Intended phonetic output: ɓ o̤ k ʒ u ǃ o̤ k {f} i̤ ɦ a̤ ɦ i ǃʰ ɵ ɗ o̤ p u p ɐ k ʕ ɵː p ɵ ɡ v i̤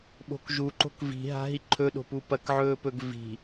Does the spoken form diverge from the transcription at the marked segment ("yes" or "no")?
yes